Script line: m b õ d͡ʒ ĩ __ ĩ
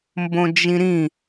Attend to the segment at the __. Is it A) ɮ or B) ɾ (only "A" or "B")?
B